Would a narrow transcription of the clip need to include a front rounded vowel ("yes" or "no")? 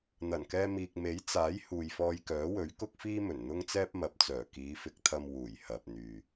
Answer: yes